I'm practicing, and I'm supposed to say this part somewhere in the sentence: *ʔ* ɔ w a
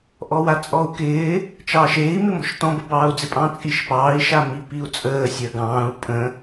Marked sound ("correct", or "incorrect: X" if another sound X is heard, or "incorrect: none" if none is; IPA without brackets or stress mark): correct